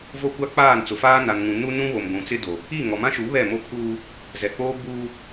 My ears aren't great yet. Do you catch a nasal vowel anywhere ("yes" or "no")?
yes